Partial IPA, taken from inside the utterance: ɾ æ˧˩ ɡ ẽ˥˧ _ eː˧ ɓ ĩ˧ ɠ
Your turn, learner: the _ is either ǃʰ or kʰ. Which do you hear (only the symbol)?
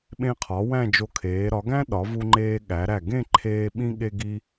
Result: ǃʰ